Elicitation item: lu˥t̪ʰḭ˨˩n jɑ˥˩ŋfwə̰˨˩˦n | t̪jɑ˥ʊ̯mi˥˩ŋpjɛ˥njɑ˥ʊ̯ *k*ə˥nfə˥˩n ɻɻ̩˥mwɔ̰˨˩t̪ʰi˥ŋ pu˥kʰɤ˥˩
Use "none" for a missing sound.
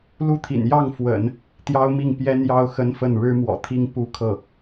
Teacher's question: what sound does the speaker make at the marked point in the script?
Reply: x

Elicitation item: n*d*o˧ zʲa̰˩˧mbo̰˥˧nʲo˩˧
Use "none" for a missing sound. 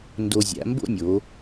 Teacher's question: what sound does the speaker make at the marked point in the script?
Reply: d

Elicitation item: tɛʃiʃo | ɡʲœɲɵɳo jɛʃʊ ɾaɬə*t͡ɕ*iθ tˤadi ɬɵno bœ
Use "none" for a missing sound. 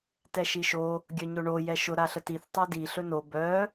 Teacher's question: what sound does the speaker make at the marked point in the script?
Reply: t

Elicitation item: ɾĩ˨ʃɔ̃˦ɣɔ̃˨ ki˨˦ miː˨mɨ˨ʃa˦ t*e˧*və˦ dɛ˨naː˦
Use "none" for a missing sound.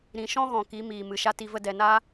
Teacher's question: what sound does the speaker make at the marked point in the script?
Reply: i˧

